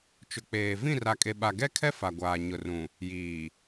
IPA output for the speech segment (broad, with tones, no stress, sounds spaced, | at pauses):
t͡ʃ ʊ˨ k͡p eː˨ v ĩ˦˨ r a˨ kʼ e˨ ɓ a˨ ɡ ɛ˦ kʰ ɛ˦ f a˨ ɡʷ aː˨ ɲ ʊ˨ r ũ˨ | j iː˨